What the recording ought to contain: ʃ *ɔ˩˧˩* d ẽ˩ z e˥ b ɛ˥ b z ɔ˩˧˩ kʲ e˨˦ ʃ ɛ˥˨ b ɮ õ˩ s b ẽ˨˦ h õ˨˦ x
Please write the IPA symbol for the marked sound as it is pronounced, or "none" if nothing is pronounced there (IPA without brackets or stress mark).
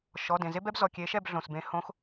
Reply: ɔ˩˧˩